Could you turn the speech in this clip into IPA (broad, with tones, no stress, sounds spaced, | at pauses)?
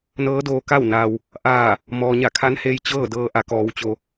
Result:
n ɤː˧˥ d oː˧ k a˥˨ w n aː˩ w | ʔ aː˧˩ | m ɔː˩ ɲ a˧˩ kʰ a˧˥ n h eː˧ j t͡ɕ ɤː˥˨ d ɤː˧ ʔ a˩˧ k ɔː˩˧ w t͡ɕ o˩